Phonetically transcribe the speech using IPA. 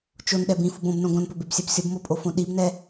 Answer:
t͡ʃonɗɛ bĩfub õbnõ ɡõnpɵbebsʲɛb sʲobmopʼofõ ɗibnɛ

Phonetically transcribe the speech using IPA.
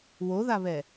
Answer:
woðaβɛ

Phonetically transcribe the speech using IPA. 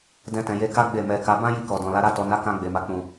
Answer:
dɛ̃˧tɛ̃˨je˧ka˦ ɡ͡be˦˨mɛ˧ ka˧ bã˦ ji˦˨kɔ˨dɔ̃˨ la˨˦ɾa˦ tɔ˧na˦ kã˧ ɡ͡be˨ma˨ k͡pũ˨

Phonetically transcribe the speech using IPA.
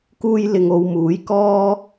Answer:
kuː˥jlɪ˧ŋo˨˧wmuː˨˥j kɔː˥

